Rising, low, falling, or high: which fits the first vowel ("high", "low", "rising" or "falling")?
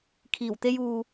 low